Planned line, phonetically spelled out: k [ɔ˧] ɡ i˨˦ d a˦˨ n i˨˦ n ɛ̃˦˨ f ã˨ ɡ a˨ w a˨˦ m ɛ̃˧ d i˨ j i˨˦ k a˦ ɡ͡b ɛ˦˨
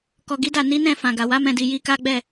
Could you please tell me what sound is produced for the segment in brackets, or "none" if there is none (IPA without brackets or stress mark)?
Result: ɔ˨